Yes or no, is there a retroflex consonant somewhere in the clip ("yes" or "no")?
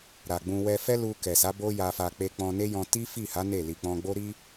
no